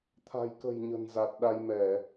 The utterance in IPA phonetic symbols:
t̪ʰ a̤˨˩ j k ə̤˨˩ j ɲ ə̤˨˩ n z a˨˩ t̚ ɗ a˧ j m ɛ˧˩˨

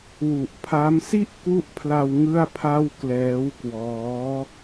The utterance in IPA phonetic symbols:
w u˨˩ ʔ pʰ a˦˥ m s i˥˩ ʔ k u˦˥ ʔ pʰ l a˧ w ŋ ɯ˥˩ a̯ pʰ a˥˩ w k l ɛː˦˥ w k w ɔː˦˥

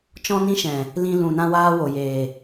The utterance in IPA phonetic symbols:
t͡ʃ ɔ̃˧ n ĩ˧ ʃ ɛ̃˨ | l ĩ˧ l ũ˨ n ã˧ w aː˧ w o˨ j eː˨

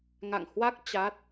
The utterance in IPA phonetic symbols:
ŋ a̰˧˨ ŋ h w a˦˥ k̚ t͡ɕ a˦˥ t̚

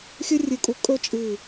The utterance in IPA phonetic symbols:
xʲ ɵ˥ rʲ ɨ˧˩ kʼ u˧ kʼ ɵ˥ t͡ʃʼ ɨ˧˩

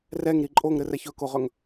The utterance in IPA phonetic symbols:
r ɛ ŋ ɾ i ǃʼ o ŋ ɾ ɘ r ɛ ç ɵ k o ʁ ɵ ŋ

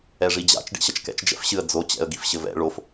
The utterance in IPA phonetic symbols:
ɛ ʐ i d͡ʑ a̰ t͡ʃ ɖ ḭ ɕ ɐ t͡ʃ k ɛ̰ t͡ʃ d͡ʒ ɛ̰ f ɕ ɨ ə̯ d͡z o t͡ɕ ɛ̰ ə̯ ɡ i f ɕ ɘ v ɛ̰ ɭ o f

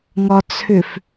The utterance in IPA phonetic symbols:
ŋ ɒ t͡sʰ ʏ f

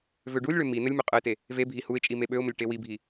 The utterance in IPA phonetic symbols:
v ø ɖ u lʲ ɭ ø m i n ə lʲ m ø qʼ ə ɪ̯ t e | v e bʱ i h u ɪ̯ t͡ʃʼ i m e ɓ ø ʊ̯ m ə lʲ ʈ e w i bʱ i

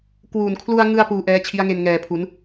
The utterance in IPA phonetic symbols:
k w uː˨˩ n kʰ l u˧ a̯ ŋ ɯ˧ a̯ p uː˧ ʔ ɛː˦˥ t͡ɕʰ i˦˥ a̯ ŋ e˧ n ŋ ɛː˨˩ pʰ u˩˦ n

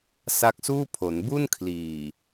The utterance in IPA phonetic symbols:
s a˦˥ k̚ s uː˥˩ pʰ o˩˦ n b u˥˩ n kʰ l iː˨˩

